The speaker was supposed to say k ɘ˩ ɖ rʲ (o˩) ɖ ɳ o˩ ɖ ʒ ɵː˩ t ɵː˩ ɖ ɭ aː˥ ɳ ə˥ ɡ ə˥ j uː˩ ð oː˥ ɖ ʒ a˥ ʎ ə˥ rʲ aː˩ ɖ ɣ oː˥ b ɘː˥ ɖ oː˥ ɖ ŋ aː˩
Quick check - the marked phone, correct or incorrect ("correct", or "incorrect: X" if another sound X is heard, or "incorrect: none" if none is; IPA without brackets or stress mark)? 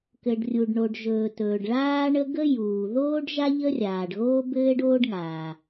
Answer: incorrect: u˩